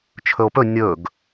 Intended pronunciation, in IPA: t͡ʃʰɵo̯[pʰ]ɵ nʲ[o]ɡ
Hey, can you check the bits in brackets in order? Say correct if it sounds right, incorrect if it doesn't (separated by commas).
incorrect, incorrect